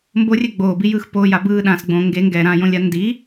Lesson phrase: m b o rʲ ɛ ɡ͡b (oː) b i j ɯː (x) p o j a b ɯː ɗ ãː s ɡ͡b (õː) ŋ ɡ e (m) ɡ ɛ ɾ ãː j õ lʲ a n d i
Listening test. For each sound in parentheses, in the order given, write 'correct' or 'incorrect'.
correct, correct, correct, incorrect

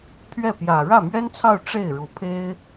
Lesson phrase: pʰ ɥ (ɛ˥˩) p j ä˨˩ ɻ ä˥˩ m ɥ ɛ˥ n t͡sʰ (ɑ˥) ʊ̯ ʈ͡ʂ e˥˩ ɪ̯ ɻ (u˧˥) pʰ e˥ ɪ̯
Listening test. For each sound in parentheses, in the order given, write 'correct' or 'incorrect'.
correct, incorrect, correct

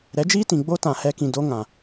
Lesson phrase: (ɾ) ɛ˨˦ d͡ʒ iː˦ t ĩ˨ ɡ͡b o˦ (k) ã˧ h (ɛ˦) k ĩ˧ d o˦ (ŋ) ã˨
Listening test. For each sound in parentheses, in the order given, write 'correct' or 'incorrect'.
correct, incorrect, correct, correct

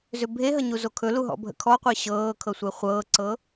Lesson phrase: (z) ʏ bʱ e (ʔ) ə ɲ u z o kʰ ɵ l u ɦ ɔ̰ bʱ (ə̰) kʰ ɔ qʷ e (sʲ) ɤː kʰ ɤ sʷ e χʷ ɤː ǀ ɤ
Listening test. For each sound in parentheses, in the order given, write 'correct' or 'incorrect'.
correct, incorrect, correct, incorrect

